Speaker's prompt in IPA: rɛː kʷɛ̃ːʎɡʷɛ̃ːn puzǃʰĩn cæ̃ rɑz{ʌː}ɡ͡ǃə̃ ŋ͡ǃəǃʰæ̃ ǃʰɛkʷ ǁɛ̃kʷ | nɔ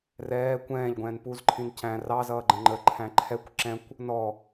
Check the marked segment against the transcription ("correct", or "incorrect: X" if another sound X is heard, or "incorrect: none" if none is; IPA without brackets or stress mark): correct